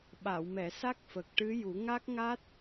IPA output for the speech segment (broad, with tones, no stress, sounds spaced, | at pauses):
ɓ a˨˩˨ w m ɛ˨˩˨ s a˦˥ k̚ f ə˨˩ k̚ ʈ ɨ˧˥ j u˨˩˦ ŋ a˦˥ k̚ ŋ a˦˥ t̚